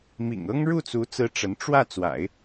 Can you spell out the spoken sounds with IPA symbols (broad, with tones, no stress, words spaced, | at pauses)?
mḭ˨˩ŋɤ˥ŋ ɻu˥˩t͡su˧˥t͡sɹ̩˧˥ ʈ͡ʂə˧˥n ʈ͡ʂwä˥˩ t͡swa̰˨˩˦ɪ̯